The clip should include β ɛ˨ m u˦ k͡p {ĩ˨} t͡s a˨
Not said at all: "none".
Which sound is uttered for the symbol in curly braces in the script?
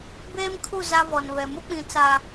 ĩ˨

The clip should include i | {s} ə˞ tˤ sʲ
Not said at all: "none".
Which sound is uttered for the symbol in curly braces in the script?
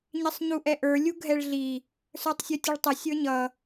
s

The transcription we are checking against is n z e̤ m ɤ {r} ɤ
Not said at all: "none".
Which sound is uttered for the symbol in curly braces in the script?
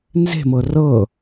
r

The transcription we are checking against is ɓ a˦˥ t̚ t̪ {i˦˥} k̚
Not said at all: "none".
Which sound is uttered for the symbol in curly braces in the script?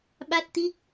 i˦˥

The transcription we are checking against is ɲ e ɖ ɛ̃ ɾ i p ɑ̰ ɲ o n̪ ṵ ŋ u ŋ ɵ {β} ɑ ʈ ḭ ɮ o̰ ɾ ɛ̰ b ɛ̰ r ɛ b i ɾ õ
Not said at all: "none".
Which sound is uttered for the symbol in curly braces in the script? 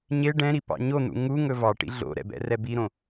v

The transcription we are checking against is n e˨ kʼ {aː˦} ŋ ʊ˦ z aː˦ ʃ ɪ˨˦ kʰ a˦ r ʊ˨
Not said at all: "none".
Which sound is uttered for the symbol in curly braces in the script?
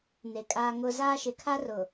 aː˦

